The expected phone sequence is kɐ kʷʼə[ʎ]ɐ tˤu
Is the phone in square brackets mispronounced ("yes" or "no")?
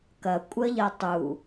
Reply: no